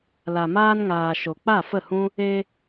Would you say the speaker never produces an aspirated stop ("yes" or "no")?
yes